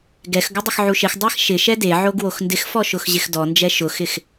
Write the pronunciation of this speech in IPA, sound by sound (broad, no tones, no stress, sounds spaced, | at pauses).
ɡ ɛ x ɡ ʊ dˤ ɪ x ʕ u ʃ ɪ x dˤ a x ʃ ɪ ʃ ɛ d e ʕ o ɡ w o x n d ɪ x f ɔ ʃ ʊ x ʑ ɪ x d ɔ n d͡ʒ ɛ ʃ ʊ x ɪ x